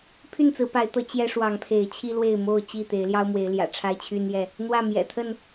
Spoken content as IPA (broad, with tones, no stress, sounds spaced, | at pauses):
pʰ y˥˨ n t͡s ɹ̩˨˦ p a˨˦ ɪ̯ t̪ ɤ˨˦ t͡ɕ j ɛ˦ ʂ w ɑ˨˦ ŋ pʰ e˨˦ ɪ̯ t͡ɕʰ i˦ l w e˥˨ ɪ̯ m o˥˨ ʊ̯ t͡ɕ i˥˨ t̪ e˨˦ ɪ̯ l j ɑ˦ ʊ̯ m w e˨˦ ɪ̯ l j ä̰˨˩ ʈ͡ʂʰ a˦ ɪ̯ t͡ɕʰ y˦ n j ɛ˥˨ | n̪ w ä˥˨ m j ɛ̰˨˩ t̪ʰ ə˥˨ n